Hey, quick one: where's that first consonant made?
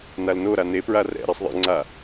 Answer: tongue tip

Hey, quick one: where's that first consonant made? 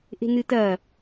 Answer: throat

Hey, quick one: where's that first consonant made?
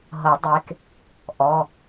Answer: throat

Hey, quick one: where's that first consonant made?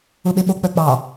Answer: lips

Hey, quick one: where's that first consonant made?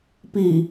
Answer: lips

